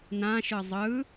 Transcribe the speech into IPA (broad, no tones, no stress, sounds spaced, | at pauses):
n ã ʃ ɯ zˤ ɯ